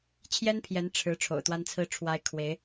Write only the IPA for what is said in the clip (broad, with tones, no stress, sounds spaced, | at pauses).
t͡ɕʰ j ɛ˥ n pʰ j ɛ˧˥ n ʈ͡ʂʰ ɻ̩˧˥ ʈ͡ʂʰ o̰˨˩ ʊ̯ t̪ w a˥ n t͡sʰ ɹ̩˥ ʈ͡ʂʰ w a˥ ɪ̯ kʰ w e˧˥ ɪ̯